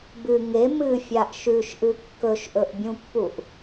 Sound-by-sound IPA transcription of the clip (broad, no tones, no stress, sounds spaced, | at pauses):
b ɨ ŋ e m ɨ fʲ a ʔ ʃ ʉ ʃ ʔ ɨ kː ɵ ʃ ʔ ɵ ʔ bʲ ũ pː u ʔ